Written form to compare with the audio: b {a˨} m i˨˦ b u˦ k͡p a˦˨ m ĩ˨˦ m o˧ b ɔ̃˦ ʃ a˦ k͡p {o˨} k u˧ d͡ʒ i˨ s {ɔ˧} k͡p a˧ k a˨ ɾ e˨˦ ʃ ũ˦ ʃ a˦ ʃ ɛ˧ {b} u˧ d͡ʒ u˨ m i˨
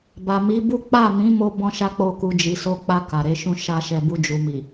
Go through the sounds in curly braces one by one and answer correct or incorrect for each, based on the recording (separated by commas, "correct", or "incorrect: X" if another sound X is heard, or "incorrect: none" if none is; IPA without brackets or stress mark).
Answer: correct, incorrect: o˦˨, incorrect: o˧, correct